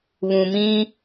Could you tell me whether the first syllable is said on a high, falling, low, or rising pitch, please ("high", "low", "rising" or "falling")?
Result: low